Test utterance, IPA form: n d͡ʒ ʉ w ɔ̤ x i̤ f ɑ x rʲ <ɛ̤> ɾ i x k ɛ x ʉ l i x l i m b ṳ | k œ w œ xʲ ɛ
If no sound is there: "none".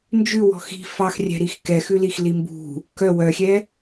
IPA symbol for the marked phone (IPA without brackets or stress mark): ɛ̤